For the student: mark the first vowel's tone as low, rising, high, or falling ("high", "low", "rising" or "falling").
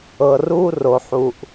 low